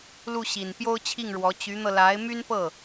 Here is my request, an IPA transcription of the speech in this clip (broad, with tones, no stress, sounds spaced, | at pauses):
l u˥˩ ɕ i˨˩ n p j o˥ ʊ̯ t͡ɕʰ i˥˩ ŋ ɻ w ɔ˧˥ t͡ɕ y˧˥ n̪ ɤ˧ l a˧˥ ɪ̯ m y˥ n p ɤ˥˩